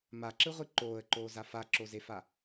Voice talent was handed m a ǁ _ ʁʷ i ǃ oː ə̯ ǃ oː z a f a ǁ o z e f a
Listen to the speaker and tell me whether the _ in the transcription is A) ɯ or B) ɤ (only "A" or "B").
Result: A